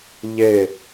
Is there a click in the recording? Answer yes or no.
no